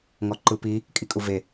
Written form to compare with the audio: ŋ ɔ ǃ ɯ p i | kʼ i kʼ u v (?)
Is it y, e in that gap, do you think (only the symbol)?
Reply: e